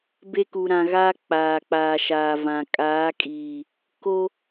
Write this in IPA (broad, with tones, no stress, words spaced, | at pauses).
be˦ku˨ɾã˨ɣaː˦ k͡paː˨ k͡paː˨ʃaː˨vã˨ kʼaː˨˦kʼiː˨ | ko˦